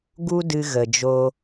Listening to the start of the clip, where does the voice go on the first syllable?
high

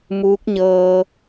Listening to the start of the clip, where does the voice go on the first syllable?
rising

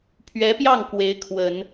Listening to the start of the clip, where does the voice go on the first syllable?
rising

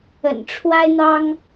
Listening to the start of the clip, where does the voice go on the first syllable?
low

